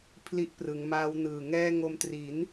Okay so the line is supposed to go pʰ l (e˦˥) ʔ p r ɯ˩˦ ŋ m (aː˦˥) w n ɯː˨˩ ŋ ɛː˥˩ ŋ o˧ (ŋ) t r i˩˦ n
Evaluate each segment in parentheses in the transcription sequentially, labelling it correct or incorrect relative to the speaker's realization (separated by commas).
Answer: incorrect, correct, incorrect